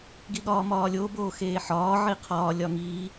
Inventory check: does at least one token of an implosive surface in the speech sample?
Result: yes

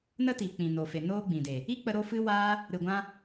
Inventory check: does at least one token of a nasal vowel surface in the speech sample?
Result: yes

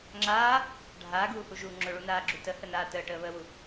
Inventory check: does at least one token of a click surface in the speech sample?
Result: yes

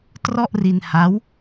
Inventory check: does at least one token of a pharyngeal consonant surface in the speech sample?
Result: no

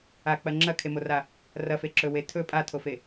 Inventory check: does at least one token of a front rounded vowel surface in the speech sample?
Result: no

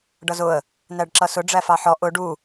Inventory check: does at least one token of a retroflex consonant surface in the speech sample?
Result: yes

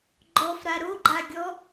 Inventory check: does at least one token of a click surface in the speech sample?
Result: yes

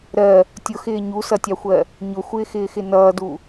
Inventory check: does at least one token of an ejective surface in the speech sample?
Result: no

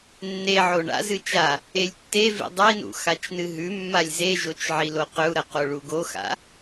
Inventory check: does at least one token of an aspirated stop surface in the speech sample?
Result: no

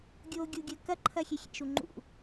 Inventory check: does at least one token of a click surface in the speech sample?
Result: yes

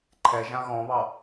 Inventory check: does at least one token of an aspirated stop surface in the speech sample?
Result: yes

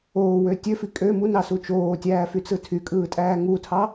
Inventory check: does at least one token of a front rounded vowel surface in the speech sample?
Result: yes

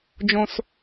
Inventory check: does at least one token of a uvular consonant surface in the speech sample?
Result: no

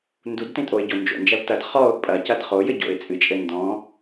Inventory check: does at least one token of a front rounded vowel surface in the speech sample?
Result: no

